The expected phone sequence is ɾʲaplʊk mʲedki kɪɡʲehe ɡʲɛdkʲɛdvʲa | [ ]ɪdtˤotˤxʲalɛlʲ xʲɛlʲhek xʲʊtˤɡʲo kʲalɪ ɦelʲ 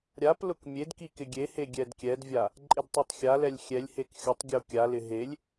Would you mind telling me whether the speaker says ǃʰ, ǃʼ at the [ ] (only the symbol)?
ǃʼ